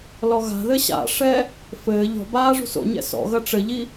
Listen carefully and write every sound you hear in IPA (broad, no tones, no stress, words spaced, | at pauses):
lɔɣa̤ðɘ ɕa̰ʂɛ | fɘː ʎɔ̤baː ʐṳso̰ɲɛ̰ sɔ̰ɣɐ ʈ͡ʂɘʎi